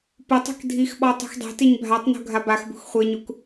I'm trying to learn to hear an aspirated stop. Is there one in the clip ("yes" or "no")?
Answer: no